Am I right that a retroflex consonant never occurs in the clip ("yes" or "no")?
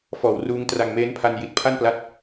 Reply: yes